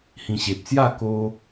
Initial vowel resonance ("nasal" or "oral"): nasal